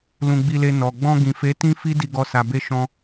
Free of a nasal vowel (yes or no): no